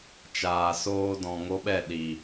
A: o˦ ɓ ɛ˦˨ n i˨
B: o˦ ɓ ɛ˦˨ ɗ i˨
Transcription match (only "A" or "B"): B